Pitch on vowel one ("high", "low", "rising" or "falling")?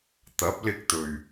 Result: rising